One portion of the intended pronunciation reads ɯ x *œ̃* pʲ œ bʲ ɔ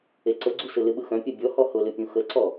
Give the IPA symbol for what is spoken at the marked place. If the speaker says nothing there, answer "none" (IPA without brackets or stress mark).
œ̃